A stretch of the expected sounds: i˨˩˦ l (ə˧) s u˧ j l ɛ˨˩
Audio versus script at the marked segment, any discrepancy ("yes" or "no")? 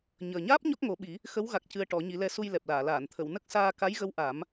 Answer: yes